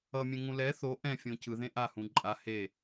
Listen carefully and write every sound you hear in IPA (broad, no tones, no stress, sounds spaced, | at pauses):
ʌ mʲ ẽ ŋ ũ l ɛ θ o ʔ ɛ̃ fʲ õ c ɯ ð ẽ ʔ a h ũ ǃʼ a h e